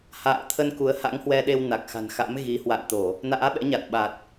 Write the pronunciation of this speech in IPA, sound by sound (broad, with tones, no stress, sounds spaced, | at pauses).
h a̰ː˧˨ t̪ʰ ə˧ n k u˨˦ ə̯ h a̰˧˥ ŋ h w ɛ˧ ɗ e˧ w n a˨˩ k̚ x a̤˨˩ n x a̰˧˥ m ɣ i˨˦ h w a̰˧˨ n t̪ o˧˩˨ | n a̰ː˧˥ ɓ ɛ̰˧˥ ɲ a˨˩ t̚ ɓ a˨˩ t̚